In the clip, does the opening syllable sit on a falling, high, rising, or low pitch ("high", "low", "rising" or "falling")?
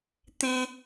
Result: high